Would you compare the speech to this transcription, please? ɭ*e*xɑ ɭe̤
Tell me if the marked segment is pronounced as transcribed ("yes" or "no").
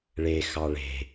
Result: yes